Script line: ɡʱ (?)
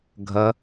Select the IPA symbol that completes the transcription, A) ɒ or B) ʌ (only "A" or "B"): B